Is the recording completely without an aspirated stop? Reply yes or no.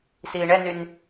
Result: yes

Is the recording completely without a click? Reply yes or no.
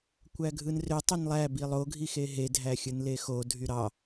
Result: yes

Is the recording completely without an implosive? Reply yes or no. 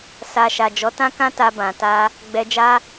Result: yes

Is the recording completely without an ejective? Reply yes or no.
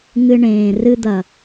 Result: yes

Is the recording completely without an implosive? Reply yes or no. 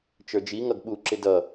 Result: no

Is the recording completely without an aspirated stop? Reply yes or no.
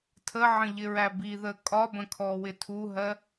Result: no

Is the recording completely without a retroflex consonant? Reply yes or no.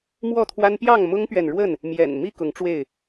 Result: no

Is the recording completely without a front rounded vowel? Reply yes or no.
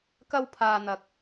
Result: yes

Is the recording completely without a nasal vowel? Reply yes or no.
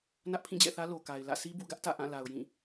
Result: no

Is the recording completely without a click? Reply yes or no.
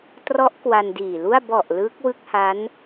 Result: yes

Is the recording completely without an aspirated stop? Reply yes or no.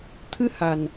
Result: no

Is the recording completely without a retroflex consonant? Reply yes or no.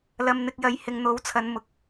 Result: yes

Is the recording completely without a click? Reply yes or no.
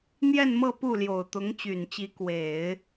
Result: yes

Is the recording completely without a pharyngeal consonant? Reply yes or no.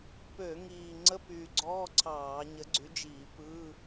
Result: yes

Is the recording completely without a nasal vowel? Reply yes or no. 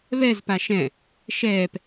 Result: no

